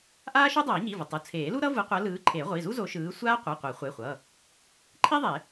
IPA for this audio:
ʔaː˥ʃo˥dˤʌː˨˩˦ ɲi˩˧˩vʌ˩˧˩tˤu˩˧˩ t͡sʰeː˨˩˦lu˥ɾʌ˥ vɯ˨˦qʷʌ˨˦ lɯː˨˦ǃʰe˨˩˦ʁʷi˩˧˩zu˥ zo˨˦ʃɯː˨˦ sʷaː˥ qʷɯ˩˧˩qʷɛ˨˩˦ χʷe˩˧˩χʷʌ˩˧˩ | ǃʰi˥ðˤe˨˩˦

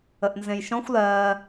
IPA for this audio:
əʔnzẽjʃɔ̃xʷ lɜː

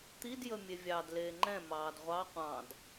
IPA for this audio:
t̪id jəmʲevʲɑd leːŋ͡ǃɛ̃ mɑːdʁʷɑ qʷɑ̃d

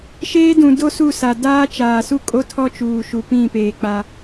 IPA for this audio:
ʃeː˦dũ˨ do˦ su˦˨sa˨ daː˦t͡ʃaː˨su˦ kʼo˦tʰɔ˦t͡ʃuː˨ ʃu˨pĩ˦˨ peː˨k͡pa˦

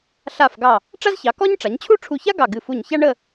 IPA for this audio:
ɬa˧˩fɡɑ˧˩ | ʈ͡ʂa˥zçɑ˩˧kɔ˥ɲ ʈ͡ʂa˩˧ɲt͡ɕʰu˥˧ʈ͡ʂʰu˧˩ça˥ ɡɑ˧˩ɡɨ˧˩fu˧˩ɲça˥ ɳə˥˧

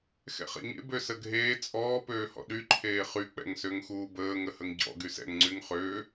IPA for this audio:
xɛ̰χɛ̰ɲḛ bøsəɡʱeː t͡sʼɔː pøːhɔ̰ɗy ǃʰeːχy k͡pɛ̰ŋsøŋxuːbəː ŋəhəŋɟɔ̰ ɡysɛ̰ŋ ŋ͡ǀyŋχøː

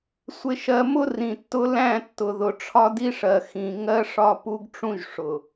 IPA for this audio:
sʷɪ˨ʃɜ˨mʊ˦ rĩ˨tːʊ˦ læ̃˦˨tːʊ˨ðʊ˨ ʈ͡ʂʰɒ˦di˦ʂɜ˨ xĩ˨ ŋɜ˦ʂɒ˦ pu˦ɡʈ͡ʂũ˦ʒ ʂʊ˨

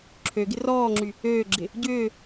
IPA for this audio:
ǁʰøɡɪ rɔːŋ͡ǁy | øːɡ͡ǁɪ | ɟʏː

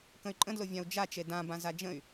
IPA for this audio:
kə̃y̯ǃʼə̃dlʊvʲãu̯ d͡ʒat͡ʃe dãbã zad͡ʒə̃y̯

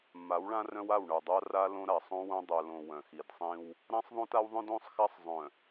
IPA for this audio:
mːa˨˦wɭã˦rœ̃˦wa˦˨w ɳœ˨dˤa˦ ra˦ lõ˦ɾa˨ sˤõ˦wõ˦ dˤœ˨lõ˨ wœ̃˨xi˨d sˤĩ˦w | ɾã˦sˤðˤõ˦ta˦wðˤœ̃˦d õ˦sˤxa˦sˤ zˤœ̃˨

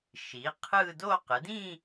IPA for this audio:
ʃiː˩˥ qʰɯː˥˧ do˥˧ qɯ˩˥dĩː˥˧

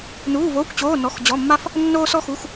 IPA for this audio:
nuː˧˥˧voː˧˥˧kʷt͡ɕoː˧˥˧ nɔ˧˥˧xd͡ʑɔ˧˥˧mːa˥f | nːoː˥sɔ˥xu˧˥˧x

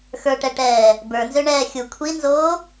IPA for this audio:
xə˞ʈɛʈɛː | bə˞nzøɳɛː xʲu kʷʰinzoː

